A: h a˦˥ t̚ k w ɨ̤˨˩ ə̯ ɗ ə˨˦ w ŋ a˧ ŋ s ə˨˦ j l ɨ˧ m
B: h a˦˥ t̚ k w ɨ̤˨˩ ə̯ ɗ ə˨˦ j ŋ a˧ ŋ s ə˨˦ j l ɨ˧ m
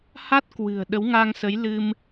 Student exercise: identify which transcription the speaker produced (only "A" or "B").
A